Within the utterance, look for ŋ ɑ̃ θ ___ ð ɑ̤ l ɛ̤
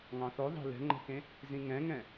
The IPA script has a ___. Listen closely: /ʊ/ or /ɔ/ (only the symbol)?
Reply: ɔ